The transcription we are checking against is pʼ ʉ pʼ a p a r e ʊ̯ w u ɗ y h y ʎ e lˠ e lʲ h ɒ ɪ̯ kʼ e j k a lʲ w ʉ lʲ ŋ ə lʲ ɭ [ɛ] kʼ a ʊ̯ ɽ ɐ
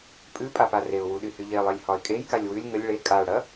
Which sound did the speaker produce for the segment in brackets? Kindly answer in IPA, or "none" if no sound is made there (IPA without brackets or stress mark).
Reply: e